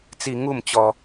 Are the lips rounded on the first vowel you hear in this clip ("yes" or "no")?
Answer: no